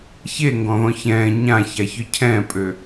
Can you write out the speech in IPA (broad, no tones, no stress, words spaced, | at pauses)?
çeŋɡɔ̃ðɔ̃ çɛ̃ː ɲãçaçœ cʰɛ̃ːpʼø